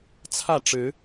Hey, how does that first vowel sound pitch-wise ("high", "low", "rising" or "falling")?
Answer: falling